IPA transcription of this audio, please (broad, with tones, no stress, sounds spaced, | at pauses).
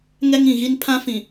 ŋ ɛ˦ ŋ ĩ˨ ɣ i˦ n pʰ ã˦ f ĩ˨